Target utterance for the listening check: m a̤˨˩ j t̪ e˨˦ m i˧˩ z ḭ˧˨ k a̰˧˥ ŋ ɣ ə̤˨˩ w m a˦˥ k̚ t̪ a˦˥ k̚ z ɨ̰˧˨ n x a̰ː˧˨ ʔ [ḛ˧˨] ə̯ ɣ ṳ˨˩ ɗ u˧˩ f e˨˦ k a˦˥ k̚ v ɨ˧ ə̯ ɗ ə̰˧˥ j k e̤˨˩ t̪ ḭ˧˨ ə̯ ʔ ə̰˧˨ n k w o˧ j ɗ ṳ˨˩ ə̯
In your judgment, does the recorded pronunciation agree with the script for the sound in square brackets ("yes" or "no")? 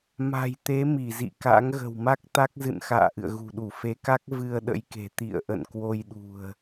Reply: no